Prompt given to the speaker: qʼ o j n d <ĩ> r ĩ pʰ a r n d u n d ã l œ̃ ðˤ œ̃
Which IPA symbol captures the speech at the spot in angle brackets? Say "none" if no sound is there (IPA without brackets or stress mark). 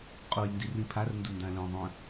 i